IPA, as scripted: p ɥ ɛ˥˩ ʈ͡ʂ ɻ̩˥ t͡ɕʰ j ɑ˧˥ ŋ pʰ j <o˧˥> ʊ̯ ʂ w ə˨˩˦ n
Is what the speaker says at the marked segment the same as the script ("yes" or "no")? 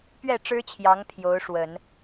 yes